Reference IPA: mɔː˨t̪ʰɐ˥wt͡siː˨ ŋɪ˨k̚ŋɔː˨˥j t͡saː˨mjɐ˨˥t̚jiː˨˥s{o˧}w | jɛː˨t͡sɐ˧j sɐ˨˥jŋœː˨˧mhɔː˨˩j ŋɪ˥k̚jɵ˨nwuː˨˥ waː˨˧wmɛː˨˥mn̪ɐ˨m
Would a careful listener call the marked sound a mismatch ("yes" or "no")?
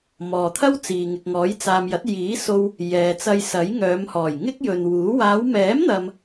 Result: no